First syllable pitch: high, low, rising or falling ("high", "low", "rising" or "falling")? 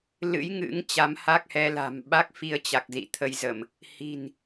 rising